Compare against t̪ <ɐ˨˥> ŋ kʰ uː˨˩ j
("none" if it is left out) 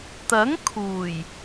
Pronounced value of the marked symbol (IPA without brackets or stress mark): ɐ˨˥